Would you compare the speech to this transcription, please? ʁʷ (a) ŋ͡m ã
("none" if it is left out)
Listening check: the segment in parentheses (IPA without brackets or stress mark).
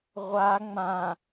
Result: a